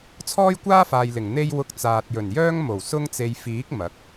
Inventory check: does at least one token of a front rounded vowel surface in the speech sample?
yes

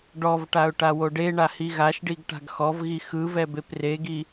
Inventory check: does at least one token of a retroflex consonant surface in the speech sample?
yes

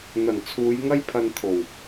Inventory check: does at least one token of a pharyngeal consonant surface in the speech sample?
no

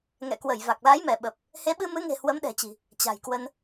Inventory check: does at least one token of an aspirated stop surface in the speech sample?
no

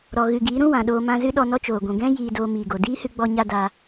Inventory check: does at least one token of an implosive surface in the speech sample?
yes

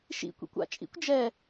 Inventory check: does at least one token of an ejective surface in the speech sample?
yes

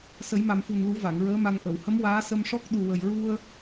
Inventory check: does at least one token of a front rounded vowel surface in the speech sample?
no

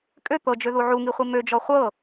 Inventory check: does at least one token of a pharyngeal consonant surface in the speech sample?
yes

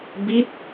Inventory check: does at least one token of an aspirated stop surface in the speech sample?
no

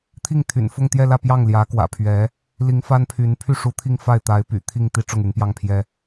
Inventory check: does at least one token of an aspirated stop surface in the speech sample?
yes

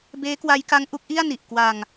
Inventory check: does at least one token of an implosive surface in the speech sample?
no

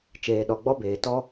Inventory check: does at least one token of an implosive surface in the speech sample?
yes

